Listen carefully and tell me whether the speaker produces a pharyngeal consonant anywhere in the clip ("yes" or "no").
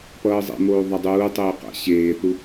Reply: no